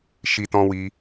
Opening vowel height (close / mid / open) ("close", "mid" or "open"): close